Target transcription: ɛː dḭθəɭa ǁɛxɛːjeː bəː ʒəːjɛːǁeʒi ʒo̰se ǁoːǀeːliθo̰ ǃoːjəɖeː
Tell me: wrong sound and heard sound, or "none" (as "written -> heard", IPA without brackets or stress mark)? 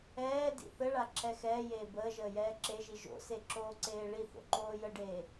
l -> ɭ